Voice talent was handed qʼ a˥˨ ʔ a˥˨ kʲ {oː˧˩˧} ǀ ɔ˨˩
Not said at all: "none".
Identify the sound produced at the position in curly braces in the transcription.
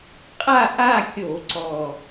o˧˩˧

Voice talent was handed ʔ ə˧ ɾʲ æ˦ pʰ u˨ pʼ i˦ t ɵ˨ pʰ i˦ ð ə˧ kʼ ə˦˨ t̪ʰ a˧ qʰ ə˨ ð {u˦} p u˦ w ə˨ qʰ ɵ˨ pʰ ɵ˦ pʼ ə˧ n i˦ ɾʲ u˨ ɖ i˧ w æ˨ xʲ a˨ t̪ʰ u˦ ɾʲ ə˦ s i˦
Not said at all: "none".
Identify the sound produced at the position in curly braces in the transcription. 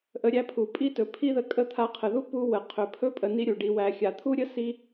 u˦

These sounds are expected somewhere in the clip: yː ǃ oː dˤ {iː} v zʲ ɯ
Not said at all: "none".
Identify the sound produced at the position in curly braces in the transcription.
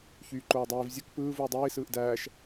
iː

